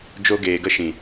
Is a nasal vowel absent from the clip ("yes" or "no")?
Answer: no